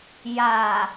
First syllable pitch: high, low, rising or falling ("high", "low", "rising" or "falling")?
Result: low